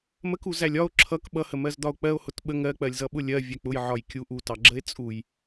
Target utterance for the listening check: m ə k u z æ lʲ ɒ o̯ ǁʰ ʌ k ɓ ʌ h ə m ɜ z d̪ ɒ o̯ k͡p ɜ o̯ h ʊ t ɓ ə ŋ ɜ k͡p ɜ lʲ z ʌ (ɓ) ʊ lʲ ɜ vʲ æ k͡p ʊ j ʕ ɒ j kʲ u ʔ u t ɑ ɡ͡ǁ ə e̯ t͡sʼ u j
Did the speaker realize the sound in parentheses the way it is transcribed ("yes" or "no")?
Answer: yes